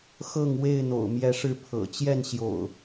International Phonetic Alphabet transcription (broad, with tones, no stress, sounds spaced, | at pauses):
x ɤ˥˨ ŋ w e˥˨ ɪ̯ n̪ o̰˨˩ ʊ̯ m j ɛ˨˦ ʂ ɻ̩˨˦ pʰ ɤ̰˨˩ t͡ɕ j ɛ˥˨ n ɕ j o̰˨˩ ʊ̯